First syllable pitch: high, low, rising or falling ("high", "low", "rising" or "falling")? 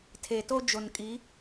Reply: low